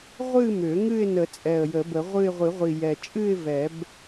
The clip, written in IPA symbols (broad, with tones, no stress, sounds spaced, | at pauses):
ʁʷ ɨ˥˧ m ʏ˨˩˦ ŋ ɨ˥˧ ɪ̯ n ə˨˩˦ t͡sʼ ɛ˨˩ ə̯ j ə˨˩˦ b ə˨˩˦ ʁʷ ɨ˥˧ ɪ̯ ʁʷ ɨ˨˩˦ ʁʷ i˨˩ j ɛ˨˩ t͡ʃʼ ɨ˥˧ ɪ̯ v ɛ˨˩˦ b